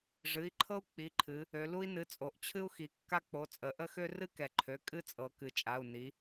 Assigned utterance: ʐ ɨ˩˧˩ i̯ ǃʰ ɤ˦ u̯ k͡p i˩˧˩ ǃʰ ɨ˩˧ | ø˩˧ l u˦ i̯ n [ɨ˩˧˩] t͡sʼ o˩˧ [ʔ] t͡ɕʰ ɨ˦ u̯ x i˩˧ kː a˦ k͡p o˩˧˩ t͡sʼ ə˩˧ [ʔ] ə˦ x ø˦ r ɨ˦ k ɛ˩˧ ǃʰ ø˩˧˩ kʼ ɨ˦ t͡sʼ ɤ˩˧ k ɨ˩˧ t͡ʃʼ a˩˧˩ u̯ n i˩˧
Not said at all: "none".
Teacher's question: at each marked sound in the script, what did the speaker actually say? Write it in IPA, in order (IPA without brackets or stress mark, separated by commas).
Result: ɨ˩˧˩, ʔ, ʔ